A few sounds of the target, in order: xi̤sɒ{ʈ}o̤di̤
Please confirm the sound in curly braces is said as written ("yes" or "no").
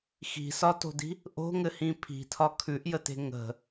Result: no